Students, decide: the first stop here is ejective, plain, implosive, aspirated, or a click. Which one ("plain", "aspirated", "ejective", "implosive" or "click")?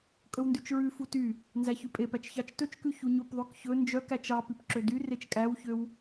ejective